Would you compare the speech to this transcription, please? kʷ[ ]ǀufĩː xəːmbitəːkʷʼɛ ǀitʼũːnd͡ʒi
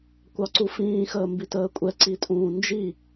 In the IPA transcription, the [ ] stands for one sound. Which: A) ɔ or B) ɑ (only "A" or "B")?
B